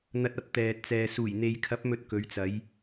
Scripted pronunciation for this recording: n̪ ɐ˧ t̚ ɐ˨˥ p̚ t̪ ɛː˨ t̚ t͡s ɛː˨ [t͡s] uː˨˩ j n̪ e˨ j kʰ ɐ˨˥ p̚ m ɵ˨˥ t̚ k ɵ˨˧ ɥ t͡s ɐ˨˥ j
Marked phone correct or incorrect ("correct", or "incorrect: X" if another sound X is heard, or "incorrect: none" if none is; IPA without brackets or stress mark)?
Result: incorrect: s